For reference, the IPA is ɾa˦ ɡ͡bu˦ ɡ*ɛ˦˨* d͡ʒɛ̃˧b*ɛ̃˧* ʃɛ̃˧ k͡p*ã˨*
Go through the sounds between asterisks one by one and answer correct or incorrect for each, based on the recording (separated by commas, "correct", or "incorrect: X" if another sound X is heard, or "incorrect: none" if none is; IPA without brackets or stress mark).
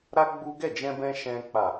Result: correct, correct, incorrect: a˨